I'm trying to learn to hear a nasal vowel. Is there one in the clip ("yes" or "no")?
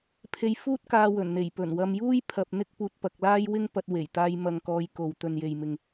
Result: no